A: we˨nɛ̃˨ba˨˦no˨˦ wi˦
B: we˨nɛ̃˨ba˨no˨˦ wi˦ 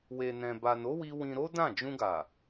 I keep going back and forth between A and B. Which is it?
B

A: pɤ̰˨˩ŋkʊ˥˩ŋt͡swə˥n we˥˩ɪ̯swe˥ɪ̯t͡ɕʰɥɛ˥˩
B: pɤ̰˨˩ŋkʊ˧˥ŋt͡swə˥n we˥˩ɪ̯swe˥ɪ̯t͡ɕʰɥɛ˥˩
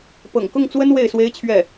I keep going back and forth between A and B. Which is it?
A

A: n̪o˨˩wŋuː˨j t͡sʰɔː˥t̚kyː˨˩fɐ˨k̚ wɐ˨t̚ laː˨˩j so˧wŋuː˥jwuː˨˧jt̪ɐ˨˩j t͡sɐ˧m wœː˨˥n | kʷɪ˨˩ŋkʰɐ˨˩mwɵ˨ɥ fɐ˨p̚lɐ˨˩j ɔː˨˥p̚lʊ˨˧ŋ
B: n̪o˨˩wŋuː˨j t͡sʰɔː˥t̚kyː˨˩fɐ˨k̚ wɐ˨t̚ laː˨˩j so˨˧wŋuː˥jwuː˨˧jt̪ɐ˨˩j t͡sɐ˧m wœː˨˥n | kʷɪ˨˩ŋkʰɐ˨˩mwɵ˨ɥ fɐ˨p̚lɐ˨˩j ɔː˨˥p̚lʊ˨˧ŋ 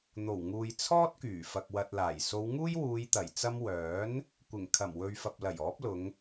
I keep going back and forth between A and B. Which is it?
B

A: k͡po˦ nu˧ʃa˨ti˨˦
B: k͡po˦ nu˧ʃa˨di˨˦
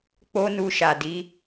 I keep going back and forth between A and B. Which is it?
B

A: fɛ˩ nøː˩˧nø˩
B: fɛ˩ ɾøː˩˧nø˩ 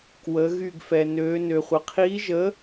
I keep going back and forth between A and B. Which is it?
A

